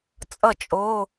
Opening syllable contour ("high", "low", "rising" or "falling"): falling